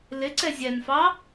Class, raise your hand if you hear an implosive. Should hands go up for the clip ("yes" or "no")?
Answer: no